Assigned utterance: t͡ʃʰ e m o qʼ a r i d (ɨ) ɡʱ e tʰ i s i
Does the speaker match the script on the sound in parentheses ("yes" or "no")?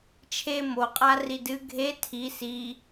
yes